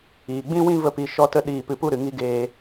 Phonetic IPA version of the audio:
iː˨ ɡ͡b ĩ˦ w ĩ˦ v ə˦ p i˧ ʃ ɔ˦ t ə˦ ɗ iː˧ p ɨ˧ p u˦ ɾ ɨ˨ ŋ i˦ ɡ eː˧

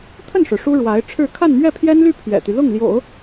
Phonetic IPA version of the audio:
t̪ʰ ə˥˩ n ʂ ɻ̩˩ ʂ u˥ ɻ w a˧˥ ɪ̯ ʈ͡ʂʰ ɻ̩˥˧ kʰ a˥˧ n m ɥ ɛ˥˩ pʰ j ɛ˥ n l y˥˩ pʰ ɥ ɛ̰˨˩ t̪ y˦ l ʊ˥˩ ŋ l j o̰˨˩˦ ʊ̯

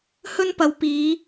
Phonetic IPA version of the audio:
h ɵ˥ n p ɐ˨˧ w p iː˨˧

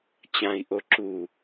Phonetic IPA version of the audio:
t͡ɕ ã i̯ ʔ o ǁ u

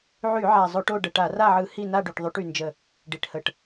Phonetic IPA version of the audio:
ʕ y˧˩˧ ʕ a˨˩ zˤ o˧˩˧ ʈ o˦˨ ɖ ə˨˩ ʈ a˧˩˧ r a˦˨ ʕ ɯ˧˩˧ h i˦˨ n a˦˨ ɖ y˨˩ ʈ ðˤ y˧˩˧ ʈ y˨˩ n d͡ʒ ə˦˨ | ɖ i˨˩ ʈ h ə˧˩˧ ʈ

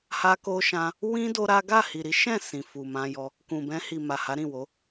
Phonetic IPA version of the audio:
h a˧ k o˧ ʃ ã˧ | w ĩ˦ d o˦ ɾ a˦ ɡ a˦˨ h i˨ ɾ i˨˦ ʃ ɛ̃˦˨ s ĩ˨ f u˨ m ã˧ j ɔ˧ | k ũ˨ b ɛ̃˧ h i˨ m a˨ h a˨˦ ɾ ĩ˦˨ w o˨˦

